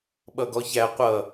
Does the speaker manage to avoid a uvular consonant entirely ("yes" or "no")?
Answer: no